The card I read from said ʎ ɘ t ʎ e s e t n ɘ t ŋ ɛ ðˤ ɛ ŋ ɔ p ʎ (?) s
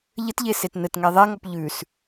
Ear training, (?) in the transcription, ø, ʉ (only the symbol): ʉ